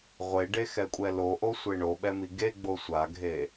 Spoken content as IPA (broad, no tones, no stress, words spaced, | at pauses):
ʁʷeɖexɛkʷʼɛ loʔosʷe ɳoɓɛmi ɡeɡ͡bo sʷaɡʱe